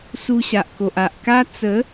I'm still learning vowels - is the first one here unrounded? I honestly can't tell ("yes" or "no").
no